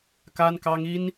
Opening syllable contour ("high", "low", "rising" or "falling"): high